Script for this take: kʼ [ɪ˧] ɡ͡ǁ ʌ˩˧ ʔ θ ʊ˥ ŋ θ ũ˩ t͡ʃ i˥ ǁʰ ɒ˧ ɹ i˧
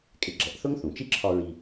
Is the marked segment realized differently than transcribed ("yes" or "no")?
no